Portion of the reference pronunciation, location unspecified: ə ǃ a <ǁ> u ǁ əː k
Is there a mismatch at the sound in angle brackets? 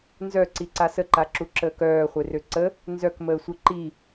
no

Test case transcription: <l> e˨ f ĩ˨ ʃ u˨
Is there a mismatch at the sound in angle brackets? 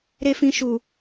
yes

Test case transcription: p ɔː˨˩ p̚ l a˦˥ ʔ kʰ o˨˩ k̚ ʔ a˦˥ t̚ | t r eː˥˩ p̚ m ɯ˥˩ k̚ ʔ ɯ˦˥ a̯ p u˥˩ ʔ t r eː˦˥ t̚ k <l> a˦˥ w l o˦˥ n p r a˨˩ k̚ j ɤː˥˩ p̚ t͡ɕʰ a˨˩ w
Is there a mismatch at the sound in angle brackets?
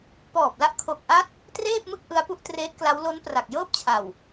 no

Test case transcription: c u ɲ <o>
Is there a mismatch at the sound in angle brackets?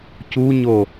no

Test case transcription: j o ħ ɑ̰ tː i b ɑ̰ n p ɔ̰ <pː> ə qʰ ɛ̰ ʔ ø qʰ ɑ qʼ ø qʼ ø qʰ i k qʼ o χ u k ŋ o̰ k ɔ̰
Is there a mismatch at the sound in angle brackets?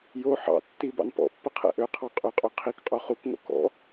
no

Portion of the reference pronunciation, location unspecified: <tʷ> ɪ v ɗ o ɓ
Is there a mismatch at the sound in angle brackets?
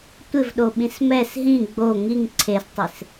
no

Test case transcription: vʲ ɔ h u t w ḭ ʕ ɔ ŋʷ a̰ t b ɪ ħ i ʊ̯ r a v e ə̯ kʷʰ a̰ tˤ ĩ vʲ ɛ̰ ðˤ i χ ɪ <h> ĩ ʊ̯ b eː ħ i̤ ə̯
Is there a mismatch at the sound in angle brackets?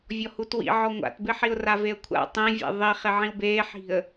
yes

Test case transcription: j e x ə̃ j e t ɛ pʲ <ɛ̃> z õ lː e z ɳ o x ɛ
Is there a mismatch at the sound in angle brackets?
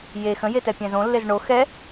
no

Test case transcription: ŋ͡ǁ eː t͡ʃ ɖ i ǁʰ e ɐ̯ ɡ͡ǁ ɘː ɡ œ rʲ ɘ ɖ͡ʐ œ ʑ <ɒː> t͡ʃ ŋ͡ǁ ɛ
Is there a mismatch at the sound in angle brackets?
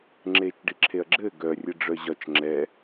yes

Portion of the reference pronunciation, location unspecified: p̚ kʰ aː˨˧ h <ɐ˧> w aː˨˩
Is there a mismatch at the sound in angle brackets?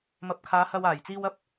no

